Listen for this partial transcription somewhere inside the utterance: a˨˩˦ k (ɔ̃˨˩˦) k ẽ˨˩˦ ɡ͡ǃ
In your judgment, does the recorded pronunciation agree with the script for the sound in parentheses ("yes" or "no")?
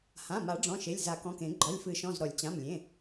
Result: no